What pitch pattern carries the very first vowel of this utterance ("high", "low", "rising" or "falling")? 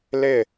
falling